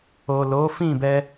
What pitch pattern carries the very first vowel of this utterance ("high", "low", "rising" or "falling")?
low